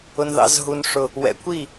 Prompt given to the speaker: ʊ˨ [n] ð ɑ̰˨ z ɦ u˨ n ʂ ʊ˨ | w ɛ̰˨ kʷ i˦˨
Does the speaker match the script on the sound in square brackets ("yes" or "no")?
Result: yes